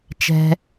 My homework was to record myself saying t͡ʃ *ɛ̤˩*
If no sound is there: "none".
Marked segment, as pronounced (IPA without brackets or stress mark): ɛ̤˩